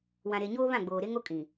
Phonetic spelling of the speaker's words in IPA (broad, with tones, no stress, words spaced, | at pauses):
wã˨ɾe˨ɲoː˦ βã˦˨ɡ͡boː˨ɾe˦ŋo˦ kʼĩ˨